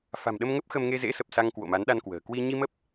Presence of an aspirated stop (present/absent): absent